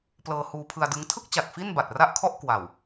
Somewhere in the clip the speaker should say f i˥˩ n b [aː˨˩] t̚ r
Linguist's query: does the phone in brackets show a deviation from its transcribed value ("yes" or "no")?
yes